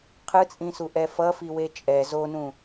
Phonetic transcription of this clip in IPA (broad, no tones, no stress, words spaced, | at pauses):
qʰɯt͡sʼĩsuʔɛ fʌfiwe t͡ʃʼɛ zonũ